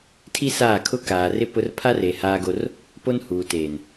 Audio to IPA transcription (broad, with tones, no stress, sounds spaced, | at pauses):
tʰ i˦ s aː˦˨ kʰ ʊ˦ k aː˨ r ɪ˦ p ʊ˦ r pʰ a˦ r e˨ h aː˦ ɡ o˦ r | p o˦ n h uː˨ t eː˨ n